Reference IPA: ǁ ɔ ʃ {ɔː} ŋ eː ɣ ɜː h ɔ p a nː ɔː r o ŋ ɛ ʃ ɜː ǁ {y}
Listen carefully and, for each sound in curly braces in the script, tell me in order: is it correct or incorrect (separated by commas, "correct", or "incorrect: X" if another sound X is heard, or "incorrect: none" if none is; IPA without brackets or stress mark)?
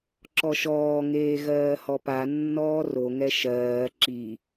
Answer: correct, incorrect: i